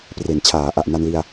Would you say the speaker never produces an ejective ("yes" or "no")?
yes